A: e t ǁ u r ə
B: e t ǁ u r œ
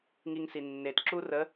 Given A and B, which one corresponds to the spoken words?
A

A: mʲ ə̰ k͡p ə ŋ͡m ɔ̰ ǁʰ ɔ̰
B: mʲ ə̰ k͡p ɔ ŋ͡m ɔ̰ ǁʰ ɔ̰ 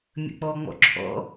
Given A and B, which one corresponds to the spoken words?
B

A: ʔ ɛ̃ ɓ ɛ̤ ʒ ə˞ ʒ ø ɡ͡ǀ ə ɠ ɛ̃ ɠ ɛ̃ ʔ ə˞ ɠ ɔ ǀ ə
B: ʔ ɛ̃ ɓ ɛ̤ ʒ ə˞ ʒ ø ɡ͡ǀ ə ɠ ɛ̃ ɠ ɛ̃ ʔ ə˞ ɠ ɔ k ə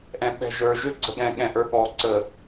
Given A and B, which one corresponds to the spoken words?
A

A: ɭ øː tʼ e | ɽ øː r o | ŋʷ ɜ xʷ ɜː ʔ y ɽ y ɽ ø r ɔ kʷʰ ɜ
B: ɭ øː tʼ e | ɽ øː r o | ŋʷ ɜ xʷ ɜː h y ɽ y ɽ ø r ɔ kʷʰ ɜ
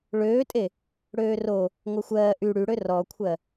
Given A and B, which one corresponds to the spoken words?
A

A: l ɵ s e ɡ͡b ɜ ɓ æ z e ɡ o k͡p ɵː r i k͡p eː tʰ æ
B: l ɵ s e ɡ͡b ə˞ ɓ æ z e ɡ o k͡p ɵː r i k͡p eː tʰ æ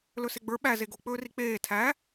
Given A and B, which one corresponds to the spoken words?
B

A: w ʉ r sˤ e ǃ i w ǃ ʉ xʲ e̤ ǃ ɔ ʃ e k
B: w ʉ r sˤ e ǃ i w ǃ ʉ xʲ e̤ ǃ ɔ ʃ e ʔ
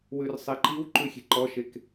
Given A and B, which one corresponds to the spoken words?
A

